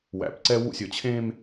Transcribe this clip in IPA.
w æ̰˨ p ǀ ɛ˦ w ṵ˦˨ sʲ ɵ˨ t͡ɕʰ ẽ˦ m

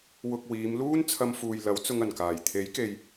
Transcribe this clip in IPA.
w ʊ˨ k̚ w iː˨˧ m l uː˥ n t͡sʰ ɐ˧ m f uː˨ j l ɐ˨˥ w t͡s ʊ˧ ŋ ɐ˨˩ n k aː˨˩ j t̪ʰ e˨˥ j k e˨ j

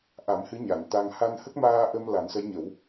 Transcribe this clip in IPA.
ʔ a˨˩˦ m h ɨ˧˥ ɲ a˨˩˨ n t̪ a˧ ŋ h a˧ n h ə˦˥ k̚ m aː˧ ʔ ə˧ m l a˨˩˦ n s ə˧˥ j ɲ ə˨˩˦ w

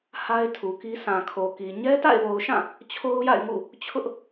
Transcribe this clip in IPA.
h a˦ ɪ̯ tʰ u˨ k i˦ sʰ ã˨ kʰ o˨ k i˨ ɲ ɛ˦ t a̰˦˨ ɪ̯ w o˨ ʊ̯ ʃ ã˦˨ | t͡ɕʰ o˦ ʊ̯ j a̰˦˨ ɪ̯ ŋ ṵ˦˨ | t͡ɕʰ ʊ˦ ʔ

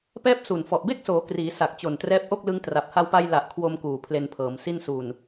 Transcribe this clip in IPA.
p ɛː˥˩ p̚ s u˨˩ n f ɔ˨˩ ʔ b e˥˩ k̚ s oː˩˦ k r iː˩˦ s a˨˩ k̚ t͡ɕ o˨˩ n t r ɛː˦˥ p̚ ʔ o˥˩ k̚ l ɯ˦˥ ŋ t r a˨˩ p̚ h a˧ w p a˧ j l a˨˩ ʔ kʰ w o˧ m k uː˨˩ pʰ l e˧ n pʰ ɤː˩˦ m s i˥˩ n s u˨˩ n

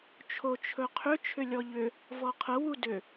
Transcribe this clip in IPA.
t͡ʃʰ o t͡ʃʰ ɵ qʰ ʏ t͡ʃʰ ʏ lʲ ɔ ʎ ʏ | v ɔ qʰ ə w u d ʏ

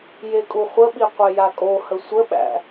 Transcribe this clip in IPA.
j e kʼ u χʷ ə ɓ i qʷ e j a kʼ o h ə sʷ ə ɓ æ̰

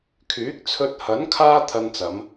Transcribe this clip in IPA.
kʰ yː˨˥ k̚ t͡sʰ ɵ˧ t̚ h ɐ˨˥ n kʰ aː˥ t̪ʰ ɐ˧ n t͡s ɐ˨˧ m

